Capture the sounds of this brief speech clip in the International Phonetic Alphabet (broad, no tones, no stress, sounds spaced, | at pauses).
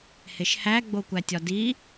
h e ʃ h æ ɡ͡b o kʷ æ tʲ ɒ d i